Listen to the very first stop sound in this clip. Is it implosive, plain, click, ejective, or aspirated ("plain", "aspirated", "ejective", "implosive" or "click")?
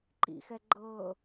click